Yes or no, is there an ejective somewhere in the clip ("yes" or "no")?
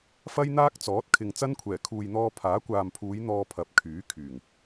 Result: no